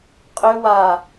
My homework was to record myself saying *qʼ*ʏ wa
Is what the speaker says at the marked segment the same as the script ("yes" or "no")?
yes